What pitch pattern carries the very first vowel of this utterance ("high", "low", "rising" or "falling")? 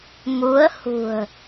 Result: rising